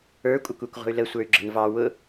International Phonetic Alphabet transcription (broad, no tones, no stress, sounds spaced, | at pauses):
ə˞ kʷʼ ə kʷ ɛ kʷ ʁʷ ə̤ y̯ l ə sʷ ə˞ y̯ ɡ͡ǁ ə̤ n v ɑ w ʊ